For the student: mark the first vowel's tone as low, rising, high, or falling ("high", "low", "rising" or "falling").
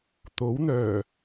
rising